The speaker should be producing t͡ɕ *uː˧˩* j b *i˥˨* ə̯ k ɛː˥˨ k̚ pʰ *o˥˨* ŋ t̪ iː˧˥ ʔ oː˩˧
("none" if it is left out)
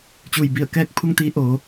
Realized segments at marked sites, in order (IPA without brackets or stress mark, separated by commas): uː˧˩, i˧˩, u˥˨